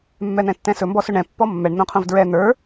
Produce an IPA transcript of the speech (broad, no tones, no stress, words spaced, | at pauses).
mːɛn̪ɛ̃tːɛ̃sɵ mbɔsɵɳɛ̃ pːɔmːɛɳ n̪õqʰõvdɹɛ n̪ə˞